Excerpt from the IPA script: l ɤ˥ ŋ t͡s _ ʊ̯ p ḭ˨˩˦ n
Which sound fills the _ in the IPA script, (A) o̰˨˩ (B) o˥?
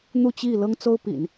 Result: B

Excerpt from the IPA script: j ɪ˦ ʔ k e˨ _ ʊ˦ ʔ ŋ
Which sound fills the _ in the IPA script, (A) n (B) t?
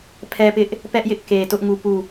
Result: B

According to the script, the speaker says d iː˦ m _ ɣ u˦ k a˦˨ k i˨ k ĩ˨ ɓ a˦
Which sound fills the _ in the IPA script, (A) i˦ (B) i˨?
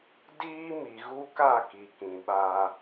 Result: B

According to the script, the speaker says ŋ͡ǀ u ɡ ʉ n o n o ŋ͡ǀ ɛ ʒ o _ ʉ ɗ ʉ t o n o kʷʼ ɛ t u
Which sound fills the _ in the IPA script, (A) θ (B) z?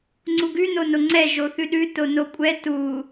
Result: A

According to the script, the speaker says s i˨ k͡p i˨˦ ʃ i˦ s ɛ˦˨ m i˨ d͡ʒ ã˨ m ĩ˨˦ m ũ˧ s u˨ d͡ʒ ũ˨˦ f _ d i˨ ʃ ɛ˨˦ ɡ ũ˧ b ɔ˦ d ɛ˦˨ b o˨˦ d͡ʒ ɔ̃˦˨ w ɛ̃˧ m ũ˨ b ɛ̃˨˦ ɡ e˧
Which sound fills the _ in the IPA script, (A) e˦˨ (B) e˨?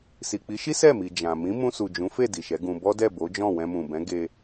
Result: A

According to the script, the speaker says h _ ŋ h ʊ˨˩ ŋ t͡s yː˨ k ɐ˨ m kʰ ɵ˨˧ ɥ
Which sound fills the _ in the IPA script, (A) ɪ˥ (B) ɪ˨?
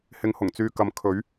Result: B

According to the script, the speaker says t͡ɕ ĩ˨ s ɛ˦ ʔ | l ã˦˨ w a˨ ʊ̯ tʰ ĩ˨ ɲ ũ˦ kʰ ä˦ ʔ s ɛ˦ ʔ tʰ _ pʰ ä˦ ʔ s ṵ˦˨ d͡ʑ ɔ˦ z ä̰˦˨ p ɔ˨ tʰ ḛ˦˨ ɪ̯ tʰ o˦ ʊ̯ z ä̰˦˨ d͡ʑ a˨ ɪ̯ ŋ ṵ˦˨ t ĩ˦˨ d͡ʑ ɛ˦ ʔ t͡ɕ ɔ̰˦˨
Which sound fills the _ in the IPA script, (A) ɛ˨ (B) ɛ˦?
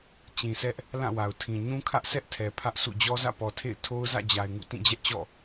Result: A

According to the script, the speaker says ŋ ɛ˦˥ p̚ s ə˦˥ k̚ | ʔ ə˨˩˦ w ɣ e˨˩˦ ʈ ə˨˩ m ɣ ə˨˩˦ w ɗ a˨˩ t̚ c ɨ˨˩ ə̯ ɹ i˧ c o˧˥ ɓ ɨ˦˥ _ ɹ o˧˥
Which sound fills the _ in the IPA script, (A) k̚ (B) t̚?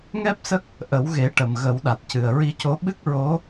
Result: A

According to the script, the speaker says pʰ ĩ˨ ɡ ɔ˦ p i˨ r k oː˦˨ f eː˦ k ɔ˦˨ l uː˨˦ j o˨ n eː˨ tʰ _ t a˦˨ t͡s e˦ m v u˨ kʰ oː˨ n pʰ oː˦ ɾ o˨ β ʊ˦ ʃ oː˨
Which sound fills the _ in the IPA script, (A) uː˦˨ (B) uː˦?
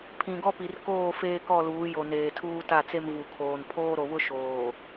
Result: B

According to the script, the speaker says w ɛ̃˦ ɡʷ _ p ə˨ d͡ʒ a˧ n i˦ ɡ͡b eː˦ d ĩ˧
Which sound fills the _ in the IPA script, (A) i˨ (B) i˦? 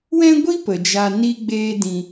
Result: B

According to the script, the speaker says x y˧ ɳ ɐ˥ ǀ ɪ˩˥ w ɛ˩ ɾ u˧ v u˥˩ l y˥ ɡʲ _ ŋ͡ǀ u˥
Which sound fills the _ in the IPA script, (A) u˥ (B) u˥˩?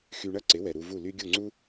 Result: B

